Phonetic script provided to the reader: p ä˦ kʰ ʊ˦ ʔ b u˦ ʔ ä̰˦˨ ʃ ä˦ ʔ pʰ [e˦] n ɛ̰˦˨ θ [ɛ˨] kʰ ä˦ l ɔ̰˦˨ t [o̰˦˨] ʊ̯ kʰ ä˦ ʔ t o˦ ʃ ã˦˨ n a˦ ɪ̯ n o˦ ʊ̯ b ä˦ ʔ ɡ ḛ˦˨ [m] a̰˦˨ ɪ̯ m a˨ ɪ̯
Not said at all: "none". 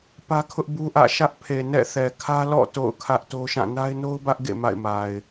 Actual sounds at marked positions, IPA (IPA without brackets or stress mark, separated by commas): e˨, ɛ˨, o̰˦˨, m